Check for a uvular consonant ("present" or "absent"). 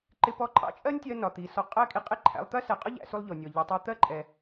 present